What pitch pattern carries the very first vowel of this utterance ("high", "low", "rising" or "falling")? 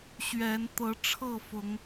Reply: rising